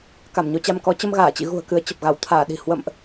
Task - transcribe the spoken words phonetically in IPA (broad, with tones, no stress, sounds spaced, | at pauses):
k a˧˩ m ɲ o˧ t͡ɕ a˧ m k ɔ˨˦ t͡ɕ ə˧ m ɣ aː˧˩ t͡ɕ ḭ˧˨ ɣ ṳ˨˩ ə̯ k ɨ˨˦ ə̯ t͡ɕ ə˨˩ p̚ ɣ a˧˩ w t̪ʰ aː˧˩ ɗ i̤˨˩ h w ə̰˧˨ m ʔ